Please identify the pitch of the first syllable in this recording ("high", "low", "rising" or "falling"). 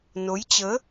rising